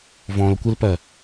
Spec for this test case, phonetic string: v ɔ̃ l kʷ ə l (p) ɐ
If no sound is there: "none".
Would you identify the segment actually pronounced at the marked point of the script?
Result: p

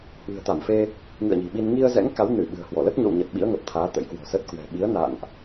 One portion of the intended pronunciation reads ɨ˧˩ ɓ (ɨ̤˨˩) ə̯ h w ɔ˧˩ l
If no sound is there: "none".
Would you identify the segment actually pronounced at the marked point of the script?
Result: ɨ̤˨˩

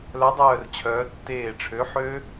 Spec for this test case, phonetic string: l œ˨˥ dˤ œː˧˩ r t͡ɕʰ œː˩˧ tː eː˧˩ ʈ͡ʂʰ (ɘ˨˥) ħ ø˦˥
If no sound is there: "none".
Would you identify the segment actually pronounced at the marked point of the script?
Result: ø˨˥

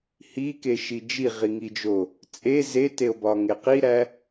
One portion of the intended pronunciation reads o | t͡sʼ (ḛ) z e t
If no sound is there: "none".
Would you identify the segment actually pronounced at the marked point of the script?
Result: e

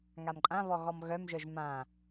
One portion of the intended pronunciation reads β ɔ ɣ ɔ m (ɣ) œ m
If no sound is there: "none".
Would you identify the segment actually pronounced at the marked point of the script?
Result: ɣ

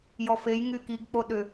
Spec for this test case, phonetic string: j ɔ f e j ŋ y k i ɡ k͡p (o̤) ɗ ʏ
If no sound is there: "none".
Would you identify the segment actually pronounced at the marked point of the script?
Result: o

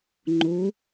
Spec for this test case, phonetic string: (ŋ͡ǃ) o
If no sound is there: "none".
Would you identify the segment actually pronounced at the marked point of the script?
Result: ŋ͡ǃ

